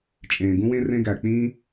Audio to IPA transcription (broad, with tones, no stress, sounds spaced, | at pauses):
t͡ʃʼ ẽː˨ ɡ ũ˦ w ẽ˦ r ẽ˦ ɡ æ˨ k͡p ĩː˦